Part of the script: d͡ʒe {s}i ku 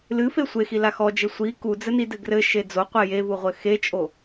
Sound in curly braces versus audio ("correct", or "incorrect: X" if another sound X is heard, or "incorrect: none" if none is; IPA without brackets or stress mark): incorrect: sʷ